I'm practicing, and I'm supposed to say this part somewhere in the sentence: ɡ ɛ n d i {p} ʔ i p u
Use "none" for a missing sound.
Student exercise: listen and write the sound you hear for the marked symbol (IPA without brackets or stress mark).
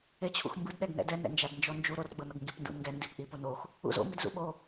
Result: p